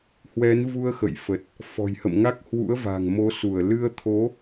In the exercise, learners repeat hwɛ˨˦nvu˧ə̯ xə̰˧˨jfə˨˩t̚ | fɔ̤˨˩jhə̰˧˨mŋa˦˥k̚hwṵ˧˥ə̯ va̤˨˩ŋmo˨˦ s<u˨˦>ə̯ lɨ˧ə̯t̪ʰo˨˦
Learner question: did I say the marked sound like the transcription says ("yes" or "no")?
no